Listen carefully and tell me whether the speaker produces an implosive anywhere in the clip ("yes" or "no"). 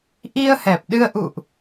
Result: yes